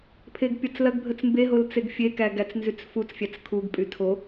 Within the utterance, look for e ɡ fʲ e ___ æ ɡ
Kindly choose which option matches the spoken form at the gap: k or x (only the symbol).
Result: k